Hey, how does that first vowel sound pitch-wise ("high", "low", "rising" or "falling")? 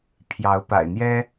rising